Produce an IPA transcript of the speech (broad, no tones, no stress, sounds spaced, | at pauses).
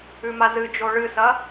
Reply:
ʉ m a z ɨ d͡ʒ o ɭ ɨ s ɐ